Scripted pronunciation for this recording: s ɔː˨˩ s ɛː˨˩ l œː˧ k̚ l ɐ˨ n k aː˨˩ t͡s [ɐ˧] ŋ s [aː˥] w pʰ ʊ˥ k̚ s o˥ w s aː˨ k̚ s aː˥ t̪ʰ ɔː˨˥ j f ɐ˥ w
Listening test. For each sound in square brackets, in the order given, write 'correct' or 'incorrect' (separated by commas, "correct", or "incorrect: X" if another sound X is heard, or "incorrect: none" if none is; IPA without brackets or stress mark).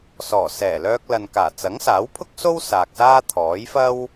incorrect: ɐ˨˥, incorrect: aː˨˥